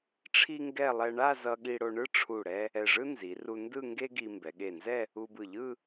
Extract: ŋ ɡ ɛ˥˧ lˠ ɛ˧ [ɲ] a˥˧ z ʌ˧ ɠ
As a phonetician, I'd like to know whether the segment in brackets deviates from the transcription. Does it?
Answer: yes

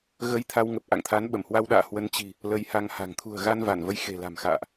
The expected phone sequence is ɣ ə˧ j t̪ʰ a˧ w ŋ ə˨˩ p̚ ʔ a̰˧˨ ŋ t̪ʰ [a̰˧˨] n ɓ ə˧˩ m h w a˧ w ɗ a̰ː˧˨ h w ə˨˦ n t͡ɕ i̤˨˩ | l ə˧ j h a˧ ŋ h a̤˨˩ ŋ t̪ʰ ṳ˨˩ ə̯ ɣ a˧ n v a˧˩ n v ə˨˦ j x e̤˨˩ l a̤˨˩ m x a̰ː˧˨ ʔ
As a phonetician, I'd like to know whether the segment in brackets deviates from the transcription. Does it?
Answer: yes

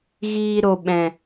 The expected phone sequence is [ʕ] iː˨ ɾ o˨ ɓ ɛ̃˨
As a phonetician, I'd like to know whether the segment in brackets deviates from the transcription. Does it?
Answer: yes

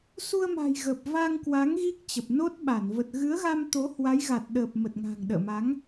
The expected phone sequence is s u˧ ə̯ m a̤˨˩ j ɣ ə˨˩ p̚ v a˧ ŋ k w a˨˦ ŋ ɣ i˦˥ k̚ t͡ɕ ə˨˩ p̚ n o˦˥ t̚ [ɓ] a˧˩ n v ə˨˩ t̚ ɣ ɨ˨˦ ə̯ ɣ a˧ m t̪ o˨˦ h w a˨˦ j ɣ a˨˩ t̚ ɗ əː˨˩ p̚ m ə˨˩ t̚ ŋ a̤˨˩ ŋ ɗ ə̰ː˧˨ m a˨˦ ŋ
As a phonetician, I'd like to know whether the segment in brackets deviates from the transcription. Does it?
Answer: no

